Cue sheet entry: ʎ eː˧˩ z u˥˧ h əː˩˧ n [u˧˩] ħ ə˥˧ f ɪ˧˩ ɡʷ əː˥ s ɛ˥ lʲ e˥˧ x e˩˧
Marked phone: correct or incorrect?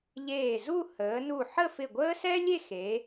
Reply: correct